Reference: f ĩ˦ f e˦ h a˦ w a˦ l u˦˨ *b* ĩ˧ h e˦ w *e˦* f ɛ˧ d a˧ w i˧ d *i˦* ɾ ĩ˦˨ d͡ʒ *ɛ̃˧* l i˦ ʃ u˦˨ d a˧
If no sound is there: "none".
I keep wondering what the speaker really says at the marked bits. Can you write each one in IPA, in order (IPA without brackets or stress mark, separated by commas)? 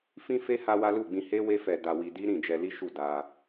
ɡ͡b, e˦, i˦, ɛ˧